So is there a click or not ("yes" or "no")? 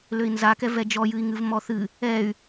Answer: no